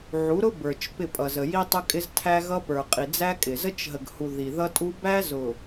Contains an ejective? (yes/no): yes